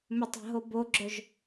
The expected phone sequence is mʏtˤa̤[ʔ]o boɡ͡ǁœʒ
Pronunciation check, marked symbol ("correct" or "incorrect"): incorrect